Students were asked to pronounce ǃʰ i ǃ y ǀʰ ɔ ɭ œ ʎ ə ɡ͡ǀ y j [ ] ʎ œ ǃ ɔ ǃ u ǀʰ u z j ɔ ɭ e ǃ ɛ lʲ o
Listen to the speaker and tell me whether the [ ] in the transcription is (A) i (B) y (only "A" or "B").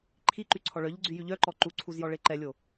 B